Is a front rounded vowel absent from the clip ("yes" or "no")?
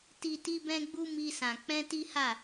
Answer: yes